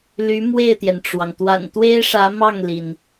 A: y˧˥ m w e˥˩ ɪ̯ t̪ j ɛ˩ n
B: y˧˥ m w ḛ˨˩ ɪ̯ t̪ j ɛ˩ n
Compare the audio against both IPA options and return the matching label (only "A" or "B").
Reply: A